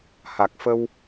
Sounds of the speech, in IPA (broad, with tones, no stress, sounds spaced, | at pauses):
h a˨˩ k̚ f ə˧ w